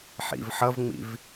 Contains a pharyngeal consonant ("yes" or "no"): yes